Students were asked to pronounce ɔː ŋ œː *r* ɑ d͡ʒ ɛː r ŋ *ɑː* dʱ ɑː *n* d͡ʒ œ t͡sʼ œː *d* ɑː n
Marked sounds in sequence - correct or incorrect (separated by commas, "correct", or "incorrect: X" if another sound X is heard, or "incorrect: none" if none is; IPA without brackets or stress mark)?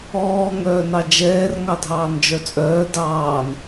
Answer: incorrect: n, incorrect: ɑ, correct, correct